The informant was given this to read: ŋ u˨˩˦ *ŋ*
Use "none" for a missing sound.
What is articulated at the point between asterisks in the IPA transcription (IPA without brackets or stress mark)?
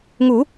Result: none